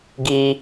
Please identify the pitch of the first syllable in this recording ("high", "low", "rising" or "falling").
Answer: low